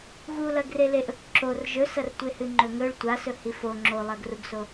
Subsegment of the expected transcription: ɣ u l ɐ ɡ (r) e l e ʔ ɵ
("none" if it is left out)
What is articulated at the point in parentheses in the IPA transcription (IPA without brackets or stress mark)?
r